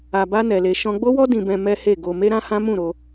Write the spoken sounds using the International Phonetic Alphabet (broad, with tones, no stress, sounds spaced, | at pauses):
a˧ b a˦ n ɛ˧ l e˧ ʃ ɔ̃˧ ɡ͡b o˦ w ɔ˦ d ĩ˧ b ɛ̃˧ m ɛ˦ h e˦˨ ɡ o˧ m e˦ ɾ ã˦ h ã˦ m ũ˦˨ ɾ o˧